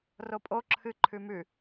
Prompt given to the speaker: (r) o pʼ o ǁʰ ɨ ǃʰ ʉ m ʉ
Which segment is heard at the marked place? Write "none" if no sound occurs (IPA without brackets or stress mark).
r